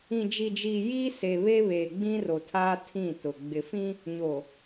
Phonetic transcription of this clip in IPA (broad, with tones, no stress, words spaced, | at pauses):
ĩ˨d͡ʒi˨d͡ʒi˨ jiː˦se˨ βe˦βeː˨ɡ͡bĩ˦ ro˨tʰaː˦ tʰĩ˦˨tʊ˨ ɡ͡bɪ˨fĩ˦ | ɲo˨